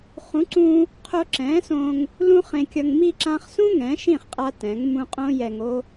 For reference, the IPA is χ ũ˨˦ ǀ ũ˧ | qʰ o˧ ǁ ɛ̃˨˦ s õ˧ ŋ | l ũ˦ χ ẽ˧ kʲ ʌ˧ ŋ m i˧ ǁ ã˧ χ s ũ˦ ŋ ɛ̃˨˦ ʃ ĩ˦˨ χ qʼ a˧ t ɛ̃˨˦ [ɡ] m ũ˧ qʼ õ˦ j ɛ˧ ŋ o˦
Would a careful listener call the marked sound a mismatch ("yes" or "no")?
yes